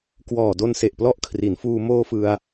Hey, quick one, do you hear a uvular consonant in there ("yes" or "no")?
no